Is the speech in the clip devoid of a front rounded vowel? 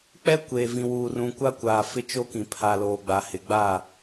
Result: yes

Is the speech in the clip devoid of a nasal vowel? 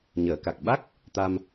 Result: yes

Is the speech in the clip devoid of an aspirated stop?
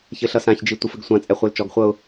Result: yes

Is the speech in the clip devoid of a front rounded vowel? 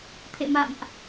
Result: yes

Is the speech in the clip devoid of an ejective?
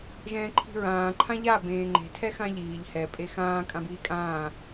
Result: no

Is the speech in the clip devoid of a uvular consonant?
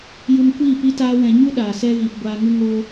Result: yes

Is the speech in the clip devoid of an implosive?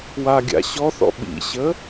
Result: no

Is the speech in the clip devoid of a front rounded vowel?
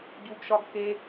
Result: yes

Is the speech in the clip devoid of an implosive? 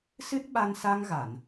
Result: no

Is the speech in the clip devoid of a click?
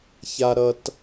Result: yes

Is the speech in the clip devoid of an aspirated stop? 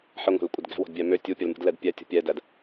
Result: yes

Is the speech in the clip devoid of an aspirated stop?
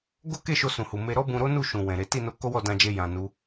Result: yes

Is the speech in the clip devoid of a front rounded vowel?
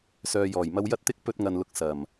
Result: no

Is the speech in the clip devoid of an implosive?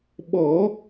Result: no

